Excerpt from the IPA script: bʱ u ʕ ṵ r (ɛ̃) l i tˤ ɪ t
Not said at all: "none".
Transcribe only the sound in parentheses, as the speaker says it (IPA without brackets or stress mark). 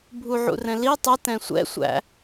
ɛ̃